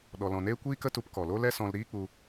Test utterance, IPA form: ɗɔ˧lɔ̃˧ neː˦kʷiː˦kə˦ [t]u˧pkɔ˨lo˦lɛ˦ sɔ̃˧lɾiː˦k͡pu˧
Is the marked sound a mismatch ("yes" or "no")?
no